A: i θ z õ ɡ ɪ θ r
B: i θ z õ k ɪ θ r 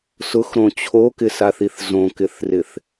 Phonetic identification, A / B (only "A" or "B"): B